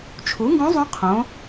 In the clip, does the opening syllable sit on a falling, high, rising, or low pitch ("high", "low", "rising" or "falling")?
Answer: rising